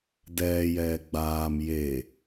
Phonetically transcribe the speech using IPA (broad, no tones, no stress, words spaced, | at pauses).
dɛːjɛː ɡ͡baːm je